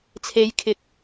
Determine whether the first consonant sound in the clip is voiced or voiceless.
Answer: voiceless